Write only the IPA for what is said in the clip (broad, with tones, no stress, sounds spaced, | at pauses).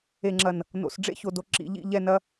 e˨ ŋ͡ǁ ɐ˨ n | n o̰˨ s ɖ͡ʐ ḛ˦ ç o˨ d o˨ ǁ ḭ˨ ʎ ḭ˦˨ ʎ ɛ˦˨ n ɐ˦